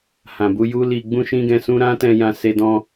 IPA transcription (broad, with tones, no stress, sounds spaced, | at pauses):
h ã˨ b u˧ j u˦ l i˧ ɡ͡b ũ˦ ʃ ĩ˦ ɡ ɛ̃˧ s ũ˦ ɾ ã˦ t ɛ̃˧ j ã˧ s e˧ d ɔ̃˧